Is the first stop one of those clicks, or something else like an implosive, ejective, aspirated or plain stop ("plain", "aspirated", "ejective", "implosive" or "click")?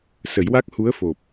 plain